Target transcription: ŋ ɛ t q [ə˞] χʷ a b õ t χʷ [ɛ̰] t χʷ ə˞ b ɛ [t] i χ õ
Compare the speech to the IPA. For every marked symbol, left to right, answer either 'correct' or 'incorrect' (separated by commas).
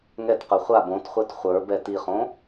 correct, incorrect, correct